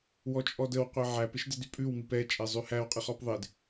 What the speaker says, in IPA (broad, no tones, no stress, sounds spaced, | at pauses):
w ɔ t͡ʃʼ ɔ d ə w qʷ ɛ ʕ æ p ɪ ʃ d ɪ d y pʼ ʉ w m i p ɛ t͡ʃʼ ɛ zˤ ʉ h æ w qʼ ɪ χ ɔ p ðˤ ɪ d